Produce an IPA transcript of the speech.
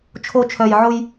t͡ʃʰ o˨ t͡ʃʰ œ˨ j ʕ ʊ˦ j

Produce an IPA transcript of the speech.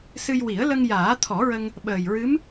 s ɨ˧ j w i˨˩˦ ə̯ l ə˧ ŋ j aː˨˩˦ t̪ʰ ɔ˨˩˦ ɹ ə˧ ŋ | ɓ əː˨˩ j ɹ ɨ˧˥ m

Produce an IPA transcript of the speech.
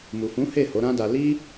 m u˨ f ũ˨˦ h e˦˨ h o˨˦ ɾ ã˦ d a˧ l i˦

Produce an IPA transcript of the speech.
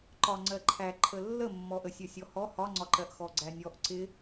ǃ ɒ ŋ͡ǀ ɜ ǃʰ æ ǃʰ ə lː ə mː ɔ ʔ ə sʲ ə sʲ ɔ h ɔ h ɒ ŋ͡ǀ ɒ ǃ ɜ ʔ x ɔ ɡ͡ǀ æ nʲ ɔ ʔ ǀ ɪ

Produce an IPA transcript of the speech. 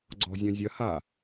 ɡ͡ǀ ɔ̤ zʲ œ̃ zʲ ɐ h a

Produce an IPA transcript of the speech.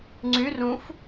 ŋ͡ǀ y r ũ f

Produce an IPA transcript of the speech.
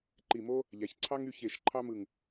ǃ i˧˩ m o˥ | ʎ æ˩˧ ç ǀʰ ɑ˥ ŋ y˥˧ ç e˧˩ ʃ ǃʰ ɑ˥ m ɯ˧˩ ŋ

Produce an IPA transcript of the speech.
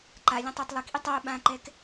ǃ a lʲ ã tˤ a tˤ lˠ i k ʔ i tˤ a ʊ̯ ɓ ã ǃ ɛ k

